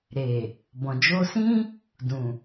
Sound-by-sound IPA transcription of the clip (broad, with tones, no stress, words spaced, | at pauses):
ɾe˨ | bɔ̃˨d͡ʒo˧sĩ˦ | dũ˨